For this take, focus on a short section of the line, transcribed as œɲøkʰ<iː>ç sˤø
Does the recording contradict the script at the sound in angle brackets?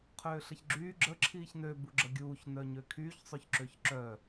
yes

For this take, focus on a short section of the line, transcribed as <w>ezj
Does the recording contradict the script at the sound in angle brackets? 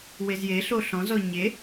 no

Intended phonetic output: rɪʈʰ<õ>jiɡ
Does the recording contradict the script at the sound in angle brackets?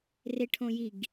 no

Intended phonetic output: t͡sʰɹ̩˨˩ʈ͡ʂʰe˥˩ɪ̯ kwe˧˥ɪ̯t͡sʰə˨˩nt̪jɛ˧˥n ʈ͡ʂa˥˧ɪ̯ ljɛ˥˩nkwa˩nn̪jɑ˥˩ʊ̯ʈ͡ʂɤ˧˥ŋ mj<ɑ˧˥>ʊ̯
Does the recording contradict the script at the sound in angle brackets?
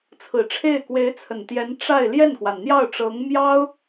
yes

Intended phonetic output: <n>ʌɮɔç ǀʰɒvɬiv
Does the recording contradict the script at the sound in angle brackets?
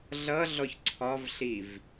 yes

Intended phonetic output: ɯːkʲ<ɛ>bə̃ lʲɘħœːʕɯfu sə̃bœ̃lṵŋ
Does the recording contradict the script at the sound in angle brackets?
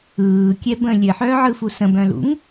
no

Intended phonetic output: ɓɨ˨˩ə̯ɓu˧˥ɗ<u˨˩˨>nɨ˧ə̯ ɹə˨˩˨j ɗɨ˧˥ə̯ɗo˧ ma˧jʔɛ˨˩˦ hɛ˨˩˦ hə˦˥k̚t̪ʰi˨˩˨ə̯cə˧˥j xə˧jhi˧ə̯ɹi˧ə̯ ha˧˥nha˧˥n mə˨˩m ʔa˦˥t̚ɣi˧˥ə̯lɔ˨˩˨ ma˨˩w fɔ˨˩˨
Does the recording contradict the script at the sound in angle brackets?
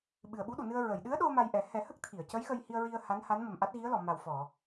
no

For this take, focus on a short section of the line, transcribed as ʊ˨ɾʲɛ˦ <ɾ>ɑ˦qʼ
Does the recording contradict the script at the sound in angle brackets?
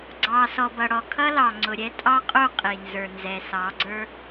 yes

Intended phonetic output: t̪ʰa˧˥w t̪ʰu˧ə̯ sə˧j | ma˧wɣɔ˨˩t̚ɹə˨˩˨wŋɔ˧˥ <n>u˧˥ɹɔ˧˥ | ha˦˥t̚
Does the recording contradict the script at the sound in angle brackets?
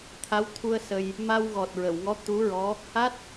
yes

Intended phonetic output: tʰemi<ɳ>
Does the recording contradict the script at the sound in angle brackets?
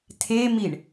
no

